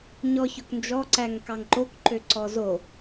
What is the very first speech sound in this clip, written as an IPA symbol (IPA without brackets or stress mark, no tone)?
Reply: ɲ